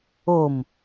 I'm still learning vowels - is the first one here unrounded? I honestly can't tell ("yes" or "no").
no